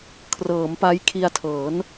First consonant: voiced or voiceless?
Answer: voiceless